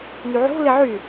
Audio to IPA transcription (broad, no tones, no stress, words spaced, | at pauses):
nyʕo̤ lɪʕy